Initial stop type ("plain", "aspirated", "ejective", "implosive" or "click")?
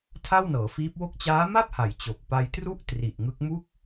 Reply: aspirated